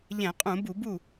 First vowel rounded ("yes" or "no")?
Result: no